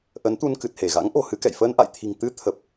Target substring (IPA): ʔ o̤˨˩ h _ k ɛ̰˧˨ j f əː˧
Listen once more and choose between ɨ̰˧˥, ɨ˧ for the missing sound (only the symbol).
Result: ɨ˧